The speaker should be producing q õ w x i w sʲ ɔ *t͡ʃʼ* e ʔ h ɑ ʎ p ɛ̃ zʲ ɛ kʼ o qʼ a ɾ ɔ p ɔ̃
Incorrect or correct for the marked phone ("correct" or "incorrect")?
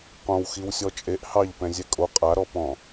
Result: correct